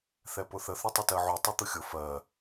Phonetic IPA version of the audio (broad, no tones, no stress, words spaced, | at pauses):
θɛpʊθə θutˤətɜʕu tˤut̪ʊxʲʊ fɜ